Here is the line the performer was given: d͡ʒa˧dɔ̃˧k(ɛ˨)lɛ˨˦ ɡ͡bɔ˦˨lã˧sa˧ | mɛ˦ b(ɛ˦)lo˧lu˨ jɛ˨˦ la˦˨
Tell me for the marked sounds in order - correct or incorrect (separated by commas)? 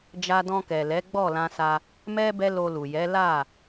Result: correct, correct